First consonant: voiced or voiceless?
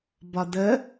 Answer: voiced